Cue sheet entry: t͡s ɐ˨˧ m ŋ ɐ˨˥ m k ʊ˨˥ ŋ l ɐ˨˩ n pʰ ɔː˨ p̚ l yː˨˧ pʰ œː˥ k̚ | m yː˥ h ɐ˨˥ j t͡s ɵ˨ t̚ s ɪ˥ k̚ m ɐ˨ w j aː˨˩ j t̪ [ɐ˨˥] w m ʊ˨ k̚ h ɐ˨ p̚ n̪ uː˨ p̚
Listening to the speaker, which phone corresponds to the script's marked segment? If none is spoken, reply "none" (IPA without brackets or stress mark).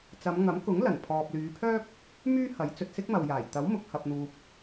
ɐ˨˥